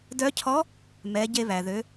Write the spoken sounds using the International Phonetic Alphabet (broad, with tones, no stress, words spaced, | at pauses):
dœ˧˥cʰɔ˧˥ | mɛ˩˧ ɟe˧βæ˩ ðø˩˧